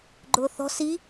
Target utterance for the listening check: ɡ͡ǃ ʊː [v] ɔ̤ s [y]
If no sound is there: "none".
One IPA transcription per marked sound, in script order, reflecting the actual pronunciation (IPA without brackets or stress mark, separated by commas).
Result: θ, i